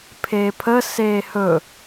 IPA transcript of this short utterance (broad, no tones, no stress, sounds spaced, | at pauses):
pʰ eː pʰ ə s eː h ɵ